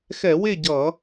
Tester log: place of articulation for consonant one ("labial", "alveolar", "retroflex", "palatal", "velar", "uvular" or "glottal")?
velar